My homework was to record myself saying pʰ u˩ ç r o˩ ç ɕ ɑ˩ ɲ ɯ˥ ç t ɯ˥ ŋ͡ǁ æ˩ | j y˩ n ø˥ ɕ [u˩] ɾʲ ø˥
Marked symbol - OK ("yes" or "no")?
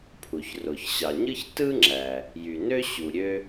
yes